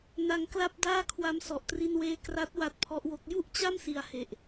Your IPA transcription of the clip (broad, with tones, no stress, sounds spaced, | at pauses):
n a˧ ŋ k l a˥˩ p̚ d aː˥˩ kʰ w a˦˥ m s ɔ˨˩ ʔ t r i˧ n w eː˧ k r a˦˥ t̚ w a˦˥ t̚ pʰ ɔ˦˥ ʔ w o˦˥ k̚ j u˥˩ ʔ t͡ɕ a˥˩ m s i˨˩ a̯ h e˨˩ ʔ